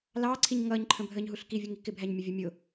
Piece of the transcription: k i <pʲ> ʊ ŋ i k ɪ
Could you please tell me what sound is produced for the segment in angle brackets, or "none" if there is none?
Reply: vʲ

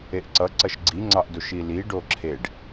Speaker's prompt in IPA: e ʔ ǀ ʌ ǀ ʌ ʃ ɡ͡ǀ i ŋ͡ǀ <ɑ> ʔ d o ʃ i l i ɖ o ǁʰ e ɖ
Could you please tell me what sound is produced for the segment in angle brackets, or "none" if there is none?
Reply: ɑ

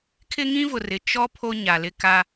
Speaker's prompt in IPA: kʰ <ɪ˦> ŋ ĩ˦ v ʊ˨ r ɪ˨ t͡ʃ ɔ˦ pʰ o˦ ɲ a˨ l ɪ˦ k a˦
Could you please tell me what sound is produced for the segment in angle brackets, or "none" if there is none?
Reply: ɪ˦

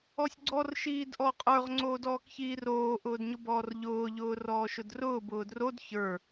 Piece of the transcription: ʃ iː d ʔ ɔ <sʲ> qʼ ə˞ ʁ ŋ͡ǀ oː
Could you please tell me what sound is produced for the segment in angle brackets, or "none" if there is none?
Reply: none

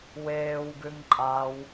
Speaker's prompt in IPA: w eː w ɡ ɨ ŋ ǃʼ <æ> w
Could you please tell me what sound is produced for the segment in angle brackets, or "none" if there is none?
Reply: a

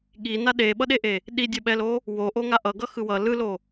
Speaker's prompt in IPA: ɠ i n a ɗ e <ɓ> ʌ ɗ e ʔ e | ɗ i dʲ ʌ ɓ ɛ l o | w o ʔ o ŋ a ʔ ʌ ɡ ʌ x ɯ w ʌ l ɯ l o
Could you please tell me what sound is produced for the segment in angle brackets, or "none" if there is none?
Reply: ɓ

